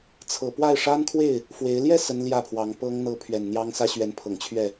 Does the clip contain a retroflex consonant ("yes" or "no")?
yes